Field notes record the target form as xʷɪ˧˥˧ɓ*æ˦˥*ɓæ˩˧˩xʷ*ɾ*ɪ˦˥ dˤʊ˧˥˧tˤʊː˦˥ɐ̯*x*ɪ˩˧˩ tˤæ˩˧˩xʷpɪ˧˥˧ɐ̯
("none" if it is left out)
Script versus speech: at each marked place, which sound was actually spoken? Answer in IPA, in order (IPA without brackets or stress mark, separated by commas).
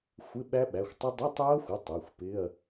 æ˦˥, tˤ, xʷ